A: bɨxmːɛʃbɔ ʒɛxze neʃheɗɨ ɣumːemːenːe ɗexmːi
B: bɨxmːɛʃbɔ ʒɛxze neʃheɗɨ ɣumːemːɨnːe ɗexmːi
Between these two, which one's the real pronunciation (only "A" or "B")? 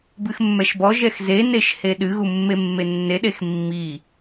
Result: A